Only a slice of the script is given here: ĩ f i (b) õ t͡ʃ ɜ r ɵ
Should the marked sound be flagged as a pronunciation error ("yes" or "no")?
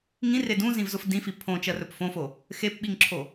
yes